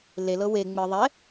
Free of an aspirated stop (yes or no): yes